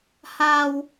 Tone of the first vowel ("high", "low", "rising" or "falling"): high